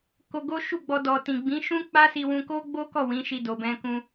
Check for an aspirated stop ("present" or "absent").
absent